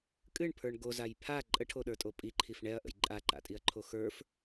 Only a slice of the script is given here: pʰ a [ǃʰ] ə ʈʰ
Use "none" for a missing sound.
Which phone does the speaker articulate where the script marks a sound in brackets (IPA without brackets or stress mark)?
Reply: ǃʼ